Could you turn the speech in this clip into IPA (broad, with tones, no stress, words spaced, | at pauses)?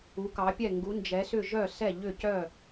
u˩˧kɑ˩˧pʲɛ˧˩ ŋɡu˩˧nd͡ʒɛ˩˧sʏ˧˩ ʒœ˧˩sɛ˧˩ ʎʏ˧˩cœ˧˩